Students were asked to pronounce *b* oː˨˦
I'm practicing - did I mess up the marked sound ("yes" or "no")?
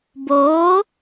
no